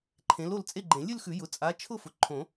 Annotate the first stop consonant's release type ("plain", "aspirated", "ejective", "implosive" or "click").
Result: click